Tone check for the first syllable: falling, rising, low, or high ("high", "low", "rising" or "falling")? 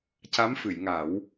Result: rising